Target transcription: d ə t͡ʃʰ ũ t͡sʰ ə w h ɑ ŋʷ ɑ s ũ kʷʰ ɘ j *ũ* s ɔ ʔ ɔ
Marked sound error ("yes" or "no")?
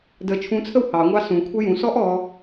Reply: no